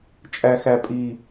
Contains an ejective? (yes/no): yes